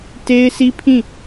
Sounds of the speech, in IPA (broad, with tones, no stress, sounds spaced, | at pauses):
t e˦ ɪ̯ sʰ i˦ pʰ ĩ˦˨